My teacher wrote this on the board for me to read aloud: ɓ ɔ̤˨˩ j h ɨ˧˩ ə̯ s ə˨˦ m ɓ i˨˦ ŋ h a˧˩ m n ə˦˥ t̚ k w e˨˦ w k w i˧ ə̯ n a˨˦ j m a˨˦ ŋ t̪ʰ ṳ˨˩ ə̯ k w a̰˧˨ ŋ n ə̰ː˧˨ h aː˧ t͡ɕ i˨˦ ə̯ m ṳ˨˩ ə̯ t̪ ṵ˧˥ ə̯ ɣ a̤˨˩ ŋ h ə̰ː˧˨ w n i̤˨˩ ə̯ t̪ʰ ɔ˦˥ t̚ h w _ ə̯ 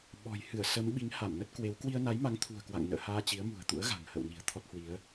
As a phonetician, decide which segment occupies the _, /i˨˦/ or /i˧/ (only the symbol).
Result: i˨˦